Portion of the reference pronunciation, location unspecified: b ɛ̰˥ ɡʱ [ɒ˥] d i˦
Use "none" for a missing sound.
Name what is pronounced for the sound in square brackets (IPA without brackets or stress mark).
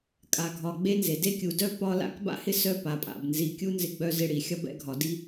ɒ˨